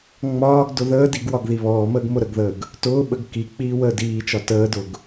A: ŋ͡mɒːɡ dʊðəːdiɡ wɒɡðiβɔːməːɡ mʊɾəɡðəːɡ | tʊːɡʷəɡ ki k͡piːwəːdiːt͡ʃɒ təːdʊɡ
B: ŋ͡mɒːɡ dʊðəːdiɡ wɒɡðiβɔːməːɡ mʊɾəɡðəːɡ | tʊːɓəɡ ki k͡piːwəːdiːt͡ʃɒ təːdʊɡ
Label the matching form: B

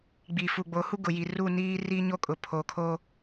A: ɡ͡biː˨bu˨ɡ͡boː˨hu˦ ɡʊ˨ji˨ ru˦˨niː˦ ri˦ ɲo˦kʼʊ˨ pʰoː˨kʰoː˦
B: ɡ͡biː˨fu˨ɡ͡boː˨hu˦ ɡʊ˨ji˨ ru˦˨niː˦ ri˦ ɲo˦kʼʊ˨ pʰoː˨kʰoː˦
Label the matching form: B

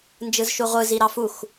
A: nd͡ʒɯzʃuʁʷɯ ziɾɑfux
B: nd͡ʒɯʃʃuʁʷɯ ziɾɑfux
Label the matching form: A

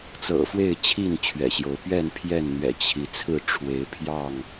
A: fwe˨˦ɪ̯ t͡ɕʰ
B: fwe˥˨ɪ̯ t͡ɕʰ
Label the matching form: B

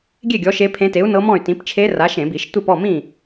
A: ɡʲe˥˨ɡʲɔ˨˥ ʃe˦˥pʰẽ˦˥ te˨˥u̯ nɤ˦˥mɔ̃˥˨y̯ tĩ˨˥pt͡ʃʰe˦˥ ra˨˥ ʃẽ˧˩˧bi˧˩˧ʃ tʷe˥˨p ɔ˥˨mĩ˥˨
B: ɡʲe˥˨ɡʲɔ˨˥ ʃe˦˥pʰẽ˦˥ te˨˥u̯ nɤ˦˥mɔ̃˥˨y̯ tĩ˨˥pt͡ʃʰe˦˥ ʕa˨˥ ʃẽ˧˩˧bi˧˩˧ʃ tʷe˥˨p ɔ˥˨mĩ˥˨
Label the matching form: A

